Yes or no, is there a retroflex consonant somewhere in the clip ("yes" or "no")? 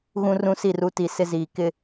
no